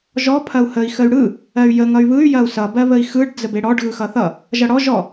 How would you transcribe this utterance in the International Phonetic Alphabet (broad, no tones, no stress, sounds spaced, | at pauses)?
ʒ ɔ pʰ ɐ u̯ h ə i̯ x ə y̯ ɽ ɯ | ɜ y̯ j ə ŋ ʌ y̯ β ɯ y̯ j ɐ u̯ s ʌ b ɜ β ə i̯ x ɯ ɖ d͡z ə b e ɽ ɔ ɖ ɣ ɯ x ʌ θ ʌ | ʒ ʌ ɽ ɔ ʒ ɔ